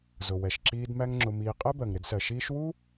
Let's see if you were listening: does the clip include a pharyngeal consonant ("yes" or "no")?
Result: no